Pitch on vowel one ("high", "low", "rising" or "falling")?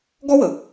high